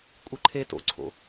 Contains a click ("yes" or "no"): yes